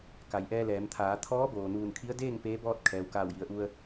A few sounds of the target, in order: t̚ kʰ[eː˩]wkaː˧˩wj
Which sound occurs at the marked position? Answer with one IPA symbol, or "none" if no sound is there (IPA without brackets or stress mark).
ɛː˩